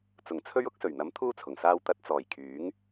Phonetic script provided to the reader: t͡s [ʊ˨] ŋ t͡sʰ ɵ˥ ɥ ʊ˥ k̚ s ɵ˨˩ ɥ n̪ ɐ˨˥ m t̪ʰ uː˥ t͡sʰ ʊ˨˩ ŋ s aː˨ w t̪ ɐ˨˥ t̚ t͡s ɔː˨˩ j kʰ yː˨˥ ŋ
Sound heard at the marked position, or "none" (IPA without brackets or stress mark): ʊ˨˩